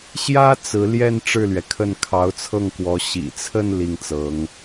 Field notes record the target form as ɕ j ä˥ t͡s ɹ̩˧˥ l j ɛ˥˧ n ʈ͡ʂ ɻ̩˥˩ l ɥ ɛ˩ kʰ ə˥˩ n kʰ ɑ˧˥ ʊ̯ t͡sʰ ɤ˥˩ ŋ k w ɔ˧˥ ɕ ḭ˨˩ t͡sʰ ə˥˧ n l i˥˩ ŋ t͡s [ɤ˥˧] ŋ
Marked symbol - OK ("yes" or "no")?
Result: no